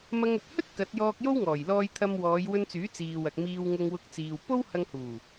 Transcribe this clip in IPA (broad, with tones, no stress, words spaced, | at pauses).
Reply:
mɐ˧ŋɵ˨t̚ hɵ˥t̚ kɐ˨˥t̚jɔː˧k̚jo˥wŋɔː˨˩j lɔː˧jt̪ʰɐ˧m wɔː˨˧jwɵ˧nt͡syː˨˥ t͡siː˨wɐ˨k̚ miː˧wŋʊ˧ŋwʊ˧k̚ t͡siː˨w po˥whɐ˧ŋ huː˨˩